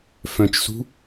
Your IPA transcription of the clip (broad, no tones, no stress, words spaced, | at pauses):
fœ̃t͡ʃsṳ